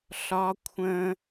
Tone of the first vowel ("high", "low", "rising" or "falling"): high